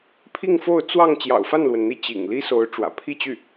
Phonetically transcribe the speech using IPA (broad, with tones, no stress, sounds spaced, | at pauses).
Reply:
pʰ i˥˧ ŋ f o˥˧ ʊ̯ t͡s w ɑ˥˩ ŋ t͡ɕ j ɑ̰˨˩ ʊ̯ f a˥˩ n l w ə˩ n n̪ i˧˥ t͡ɕ ḭ˨˩ ŋ l i˥ s o˧˥ ʊ̯ ʈ͡ʂ w ä̰˨˩ pʰ i˥˧ t͡ɕ y˥˩